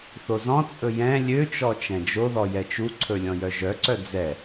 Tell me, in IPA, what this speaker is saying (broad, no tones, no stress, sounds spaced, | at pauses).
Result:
θ o z ɔ̃ t͡sʼ ɵ j ɛ̃ lʲ ø t͡ʃ ɔ t͡ʃ ɛ̃ d͡ʒ o ð ɔ j ɛ t͡ʃ u ǀʰ ɵ lʲ ɔ̃ j œ ʒ œ ǀ œ d͡z ɛ